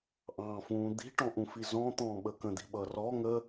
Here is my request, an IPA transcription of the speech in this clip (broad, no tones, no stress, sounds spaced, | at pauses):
ʔ ɑ̃ː f ũː d̪ i̤ ʈ ɔ̃ ʔ ũ f i z ɔ̃ t̪ ɔ̃ː ɓ ə k ə̃ d̪ i̤ ɓ ʌ r ɔ ŋ ə